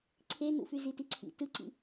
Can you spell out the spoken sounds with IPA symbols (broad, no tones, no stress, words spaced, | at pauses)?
ǀʰenṵfy zitiǀʰḭ tɯǀḭ